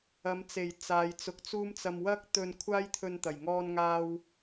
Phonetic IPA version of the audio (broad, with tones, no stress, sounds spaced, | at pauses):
ɐ˨˧ m t͡s e˨˩ j t͡s aː˨˧ j t͡s ʊ˨˥ k̚ t͡s uː˥ m t͡s ɐ˧ m w ɐ˥ k̚ t̪ ɵ˧ n kʷʰ aː˥ j t̪ʰ ɵ˧ n t̪ ɐ˨˩ j ŋ ɔː˧ n ŋ aː˧ w